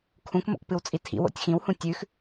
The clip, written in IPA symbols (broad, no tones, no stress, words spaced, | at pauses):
kʰũkmo̰kpɨwt͡sʼi tʰḭwo̰tʲ xĩwhũ tʲʉx